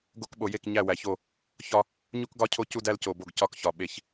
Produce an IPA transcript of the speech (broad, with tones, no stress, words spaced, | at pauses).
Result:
ɡo˦kɓo˨ je˦˨kɲæ˦˨wæ˨ço˦˨ | çɒ˦ | ɲu˦kɡɒ˦cʰo˦ cu˦dæ˦lco˨bo˦˨ɡ cɒ˦kçɒ˨ ɓe˦ç